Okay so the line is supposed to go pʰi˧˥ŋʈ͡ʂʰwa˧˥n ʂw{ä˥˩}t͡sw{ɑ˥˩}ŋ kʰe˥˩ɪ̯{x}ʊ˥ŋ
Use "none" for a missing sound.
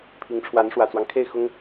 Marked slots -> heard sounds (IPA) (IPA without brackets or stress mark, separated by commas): ä˨˩, ɑ˦, x